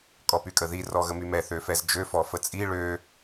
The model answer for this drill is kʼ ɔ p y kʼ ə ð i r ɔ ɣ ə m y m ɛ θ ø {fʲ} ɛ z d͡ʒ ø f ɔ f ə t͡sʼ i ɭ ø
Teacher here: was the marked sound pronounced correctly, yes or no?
no